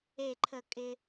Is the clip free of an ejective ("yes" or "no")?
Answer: no